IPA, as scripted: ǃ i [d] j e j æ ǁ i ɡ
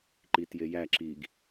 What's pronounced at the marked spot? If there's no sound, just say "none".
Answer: t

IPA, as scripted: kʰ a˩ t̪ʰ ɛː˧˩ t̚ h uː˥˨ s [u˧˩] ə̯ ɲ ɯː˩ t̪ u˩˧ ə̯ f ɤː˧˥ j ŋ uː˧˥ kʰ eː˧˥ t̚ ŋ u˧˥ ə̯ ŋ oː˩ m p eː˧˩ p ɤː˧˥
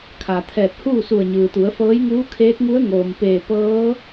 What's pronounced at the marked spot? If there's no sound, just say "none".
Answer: u˧˩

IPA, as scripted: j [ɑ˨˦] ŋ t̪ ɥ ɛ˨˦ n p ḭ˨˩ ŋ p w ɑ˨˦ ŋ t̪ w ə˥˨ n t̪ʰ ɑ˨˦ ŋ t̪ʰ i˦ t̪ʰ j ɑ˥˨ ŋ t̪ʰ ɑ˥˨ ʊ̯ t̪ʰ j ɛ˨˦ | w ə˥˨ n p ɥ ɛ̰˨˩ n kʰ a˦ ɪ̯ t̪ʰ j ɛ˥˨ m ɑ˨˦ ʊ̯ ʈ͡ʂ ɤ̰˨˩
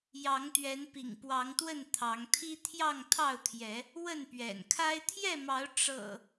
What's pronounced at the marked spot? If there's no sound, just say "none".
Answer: ɑ˨˦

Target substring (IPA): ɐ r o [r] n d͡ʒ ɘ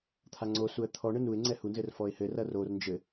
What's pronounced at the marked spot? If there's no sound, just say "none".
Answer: r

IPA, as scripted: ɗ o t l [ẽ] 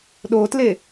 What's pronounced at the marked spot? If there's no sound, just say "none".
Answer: e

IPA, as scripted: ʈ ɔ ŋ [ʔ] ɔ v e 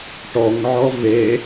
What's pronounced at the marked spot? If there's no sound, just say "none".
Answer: ʕ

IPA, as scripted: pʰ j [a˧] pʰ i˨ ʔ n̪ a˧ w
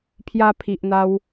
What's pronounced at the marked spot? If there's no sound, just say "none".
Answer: a˧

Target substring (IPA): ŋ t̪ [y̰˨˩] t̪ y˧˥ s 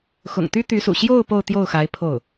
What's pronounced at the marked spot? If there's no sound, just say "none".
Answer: y˥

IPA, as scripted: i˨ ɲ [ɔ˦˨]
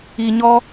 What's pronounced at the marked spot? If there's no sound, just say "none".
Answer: ɔ˦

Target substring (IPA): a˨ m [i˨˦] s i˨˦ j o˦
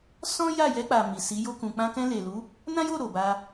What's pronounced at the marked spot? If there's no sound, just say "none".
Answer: i˨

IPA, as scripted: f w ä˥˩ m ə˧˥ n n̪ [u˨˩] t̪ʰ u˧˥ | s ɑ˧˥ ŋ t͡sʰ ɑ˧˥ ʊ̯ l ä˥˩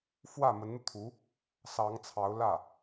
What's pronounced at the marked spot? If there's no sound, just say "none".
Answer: u˧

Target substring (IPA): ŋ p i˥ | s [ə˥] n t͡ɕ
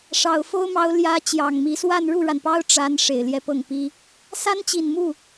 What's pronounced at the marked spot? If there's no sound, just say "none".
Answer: a˥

